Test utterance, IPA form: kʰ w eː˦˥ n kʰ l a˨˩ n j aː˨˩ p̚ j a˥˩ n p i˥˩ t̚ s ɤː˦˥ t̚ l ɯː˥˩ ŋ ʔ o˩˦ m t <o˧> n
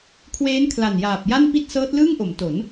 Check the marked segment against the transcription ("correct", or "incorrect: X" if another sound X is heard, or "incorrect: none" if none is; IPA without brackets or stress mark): incorrect: o˩˦